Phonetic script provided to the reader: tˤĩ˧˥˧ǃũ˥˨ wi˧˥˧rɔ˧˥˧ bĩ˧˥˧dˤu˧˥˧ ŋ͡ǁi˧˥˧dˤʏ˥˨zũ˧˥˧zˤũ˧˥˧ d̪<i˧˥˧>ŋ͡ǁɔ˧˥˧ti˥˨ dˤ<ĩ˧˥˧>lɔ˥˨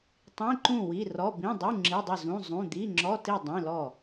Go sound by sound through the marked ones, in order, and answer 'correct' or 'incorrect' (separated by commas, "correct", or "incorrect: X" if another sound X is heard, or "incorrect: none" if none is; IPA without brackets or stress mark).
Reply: correct, correct